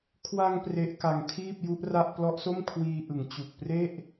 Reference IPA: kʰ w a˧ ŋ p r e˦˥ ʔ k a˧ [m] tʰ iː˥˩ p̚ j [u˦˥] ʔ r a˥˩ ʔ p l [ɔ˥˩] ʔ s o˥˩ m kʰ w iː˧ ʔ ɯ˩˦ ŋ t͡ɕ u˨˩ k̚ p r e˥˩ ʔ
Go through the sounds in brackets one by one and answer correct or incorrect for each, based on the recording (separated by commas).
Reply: incorrect, correct, incorrect